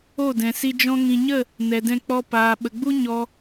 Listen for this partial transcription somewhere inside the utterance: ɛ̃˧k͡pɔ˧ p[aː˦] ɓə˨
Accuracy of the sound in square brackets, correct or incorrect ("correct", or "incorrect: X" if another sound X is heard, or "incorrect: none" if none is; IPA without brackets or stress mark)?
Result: incorrect: aː˨